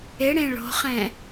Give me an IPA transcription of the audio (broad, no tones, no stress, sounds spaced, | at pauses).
ɪ ɽ ẽ ɭ o̤ χ ɛ̃